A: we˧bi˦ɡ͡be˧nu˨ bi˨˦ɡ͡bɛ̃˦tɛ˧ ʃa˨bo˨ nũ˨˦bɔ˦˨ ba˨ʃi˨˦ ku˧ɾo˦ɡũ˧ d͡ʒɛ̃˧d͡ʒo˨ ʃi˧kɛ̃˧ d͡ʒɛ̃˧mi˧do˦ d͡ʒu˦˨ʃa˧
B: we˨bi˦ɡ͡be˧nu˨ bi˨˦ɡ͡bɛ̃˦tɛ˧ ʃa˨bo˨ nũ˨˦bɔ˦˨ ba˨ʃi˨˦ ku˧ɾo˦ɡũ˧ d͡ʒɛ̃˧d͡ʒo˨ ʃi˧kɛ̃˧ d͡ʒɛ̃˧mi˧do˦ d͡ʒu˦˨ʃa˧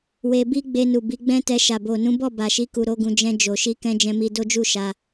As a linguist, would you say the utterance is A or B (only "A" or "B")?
A